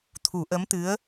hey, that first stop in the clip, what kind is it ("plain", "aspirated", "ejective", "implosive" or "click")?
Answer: aspirated